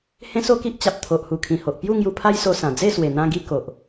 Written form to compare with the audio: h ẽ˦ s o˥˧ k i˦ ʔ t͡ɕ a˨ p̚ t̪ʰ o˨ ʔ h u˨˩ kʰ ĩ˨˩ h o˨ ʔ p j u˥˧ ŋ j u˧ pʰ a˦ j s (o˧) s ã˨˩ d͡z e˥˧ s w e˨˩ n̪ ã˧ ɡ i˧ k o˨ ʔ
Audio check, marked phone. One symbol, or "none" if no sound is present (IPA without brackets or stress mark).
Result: o˧